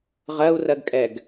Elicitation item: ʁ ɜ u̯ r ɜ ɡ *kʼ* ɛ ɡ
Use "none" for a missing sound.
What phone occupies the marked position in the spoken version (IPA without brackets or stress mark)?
kʼ